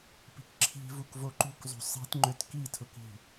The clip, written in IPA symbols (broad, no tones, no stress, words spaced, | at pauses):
pi̤kǁʰi̤vuk voǃṳkzˤṳ sˤi̤t ŋ͡ǃøtkitʰʊk i̤